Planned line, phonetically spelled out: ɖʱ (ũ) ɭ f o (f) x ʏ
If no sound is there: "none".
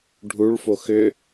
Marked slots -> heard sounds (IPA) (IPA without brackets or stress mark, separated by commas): u, none